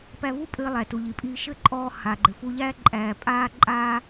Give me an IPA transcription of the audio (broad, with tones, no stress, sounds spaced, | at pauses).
p æ˧ v u˥ pʼ ɘː˧ lˠ æ˩ t u˩ ʎ i˩ pʼ iː˧ ʃ ɘ˥ ǃʼ ɔː˧ h a˩ ɡ͡ǃ ɘ˩ f u˧ ʎ æː˥ ǃʼ æː˩ pʼ aː˧ ǃʼ aː˥